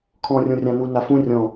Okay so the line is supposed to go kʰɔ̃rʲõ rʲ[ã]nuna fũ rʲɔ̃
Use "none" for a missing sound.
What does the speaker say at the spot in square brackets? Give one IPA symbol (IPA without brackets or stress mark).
ã